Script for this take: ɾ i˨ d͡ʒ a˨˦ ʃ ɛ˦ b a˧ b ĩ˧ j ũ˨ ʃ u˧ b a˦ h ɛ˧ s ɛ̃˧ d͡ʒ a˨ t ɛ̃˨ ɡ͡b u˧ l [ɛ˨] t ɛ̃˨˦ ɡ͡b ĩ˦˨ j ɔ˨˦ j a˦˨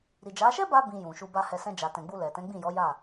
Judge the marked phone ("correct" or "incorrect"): correct